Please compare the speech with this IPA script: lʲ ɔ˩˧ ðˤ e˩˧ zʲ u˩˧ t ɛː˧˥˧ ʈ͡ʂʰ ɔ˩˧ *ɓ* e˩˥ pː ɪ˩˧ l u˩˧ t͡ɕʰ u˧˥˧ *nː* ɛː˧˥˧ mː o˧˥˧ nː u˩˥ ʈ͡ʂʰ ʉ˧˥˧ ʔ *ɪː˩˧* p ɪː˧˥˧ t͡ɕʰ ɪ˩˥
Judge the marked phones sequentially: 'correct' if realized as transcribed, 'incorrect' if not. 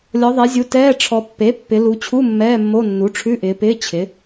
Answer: incorrect, incorrect, correct

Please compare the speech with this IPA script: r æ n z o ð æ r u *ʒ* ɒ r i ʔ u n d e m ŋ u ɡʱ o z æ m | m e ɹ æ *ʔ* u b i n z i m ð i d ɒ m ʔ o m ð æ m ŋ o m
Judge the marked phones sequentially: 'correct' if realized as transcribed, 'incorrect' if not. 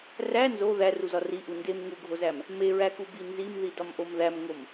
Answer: incorrect, incorrect

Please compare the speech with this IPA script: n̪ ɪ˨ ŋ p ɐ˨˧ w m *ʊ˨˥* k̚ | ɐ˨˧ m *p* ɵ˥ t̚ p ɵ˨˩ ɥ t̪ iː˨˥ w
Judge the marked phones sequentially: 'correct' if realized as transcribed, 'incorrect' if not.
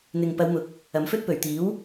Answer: correct, incorrect

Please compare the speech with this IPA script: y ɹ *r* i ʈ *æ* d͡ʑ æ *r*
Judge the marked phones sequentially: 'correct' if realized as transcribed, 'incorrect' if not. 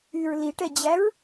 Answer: incorrect, incorrect, incorrect

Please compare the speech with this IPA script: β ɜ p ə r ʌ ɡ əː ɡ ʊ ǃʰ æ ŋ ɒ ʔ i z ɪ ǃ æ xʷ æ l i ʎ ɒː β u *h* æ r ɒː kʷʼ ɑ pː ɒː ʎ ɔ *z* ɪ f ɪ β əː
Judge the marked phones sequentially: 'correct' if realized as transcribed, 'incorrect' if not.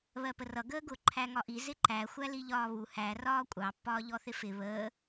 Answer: correct, incorrect

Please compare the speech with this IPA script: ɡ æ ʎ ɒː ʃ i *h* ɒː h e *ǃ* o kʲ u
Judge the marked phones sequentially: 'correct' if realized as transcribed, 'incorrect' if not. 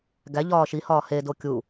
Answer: correct, incorrect

